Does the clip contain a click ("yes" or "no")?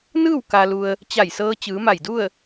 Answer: no